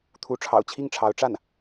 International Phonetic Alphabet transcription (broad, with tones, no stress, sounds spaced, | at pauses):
t̪ʰ u˧˥ ʈ͡ʂʰ ɑ̰˨˩ ʊ̯ t͡ɕʰ i˥˩ ŋ ʈ͡ʂʰ ɑ˧˥ ʊ̯ ʈ͡ʂ a˥˩ n